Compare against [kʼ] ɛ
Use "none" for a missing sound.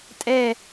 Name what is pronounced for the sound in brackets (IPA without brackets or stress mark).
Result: tʼ